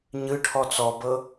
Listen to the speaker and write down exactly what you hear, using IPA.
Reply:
ɲ ɯ ʈʰ ɔ t͡s ɔ b ɤ

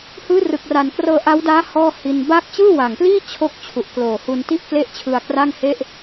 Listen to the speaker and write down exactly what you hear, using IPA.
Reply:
h ɯː˦˥ r ɯ˨˩ k̚ r a˨˩ n k r ɤː˧ ʔ a˦˥ w d aː˦˥ h ɔː˥˩ h i˧ n b aː˦˥ k̚ t͡ɕ ɯː˥˩ w a˨˩ ŋ p l iː˥˩ t͡ɕʰ o˥˩ k̚ t͡ɕʰ u˨˩ ʔ k l oː˨˩ h u˧ n t i˥˩ ʔ k l e˥˩ ʔ t͡ɕʰ ɯ˧ a̯ k r a˥˩ ŋ h e˥˩ ʔ

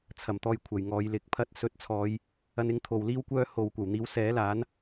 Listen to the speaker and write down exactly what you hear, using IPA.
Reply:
t͡sʰ ɐ˨˩ m t̪ ɔː˨ j kʷʰ ɐ˨˩ j ŋ ɔː˨ j l ɪ˨ k̚ pʰ ɐ˧ t̚ s ɵ˨˥ t̚ t͡sʰ ɔː˨˧ j | ɐ˧ n ɪ˨˥ ŋ t̪ʰ o˨ w l iː˥ w kʷ œː˥ h o˨ w kʷ ɐ˨˩ w n̪ iː˨˥ w s ɛː˨˥ l aː˨˥ n

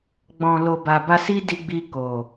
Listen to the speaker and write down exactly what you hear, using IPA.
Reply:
ɡ͡b ɔ̃˨ l o˨ b a˨ b a˧ s i˦ d i˧ ɡ͡b i˧ k o˨

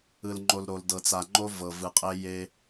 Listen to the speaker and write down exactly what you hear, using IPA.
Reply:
ɯ˨ l ŋ͡ǃ o˨ l ɾ o˨ l d ɤ˨ t͡s a˨ ŋ͡ǃ o˦ v ɤ˨ v ɯ˨ qʼ e˦ j e˦

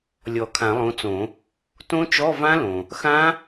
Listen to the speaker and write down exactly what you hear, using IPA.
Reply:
lʲ ɔ˨˩˦ kʰ ã˨˩˦ lˠ õ˨˦ t͡s õ˨˩˦ | t õ˦˥ t͡ʃ ɔ˧˥˧ v ã˦˥ l õ˩ | x ã˦˥

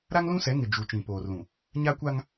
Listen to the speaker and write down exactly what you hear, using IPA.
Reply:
ɾ a˦ ŋ l ũ˦ s ɛ˨˦ ŋ ɪ˨ d͡ʒ u˨ t͡ʃ ĩ˨ p oː˨ r l ũ˨ | ɲ a˦ kʷ a˦ ŋ

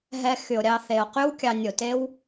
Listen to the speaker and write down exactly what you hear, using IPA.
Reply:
ɦ ɛ˧ x y˨ o̯ ɾʲ ɑ˧ θ e˨ o̯ q y˦ w kʲ ɑ˧ nʲ o˨ t e˦ w

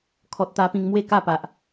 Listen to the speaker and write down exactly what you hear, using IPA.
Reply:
kʰ ɔ˨ t̚ t̪ a˧ p ĩ˧ ŋ m w e˥˧ k a˥˧ p a˨ ʔ

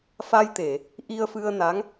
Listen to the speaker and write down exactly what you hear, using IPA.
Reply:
f a˧ j t̪ e˨˩˨ | ʔ i˧ ə̯ f ɨ˧ ə̯ n a˧˥ ŋ

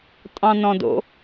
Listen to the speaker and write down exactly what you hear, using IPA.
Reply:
tʼ ɑ̃ n ɔ̃ d o̰

